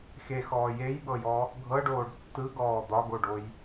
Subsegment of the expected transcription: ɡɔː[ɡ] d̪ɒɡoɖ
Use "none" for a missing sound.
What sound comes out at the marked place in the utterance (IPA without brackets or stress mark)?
none